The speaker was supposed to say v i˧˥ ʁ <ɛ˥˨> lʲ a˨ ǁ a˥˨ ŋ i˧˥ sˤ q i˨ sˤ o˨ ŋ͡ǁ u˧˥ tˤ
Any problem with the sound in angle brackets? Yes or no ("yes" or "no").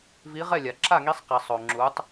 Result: no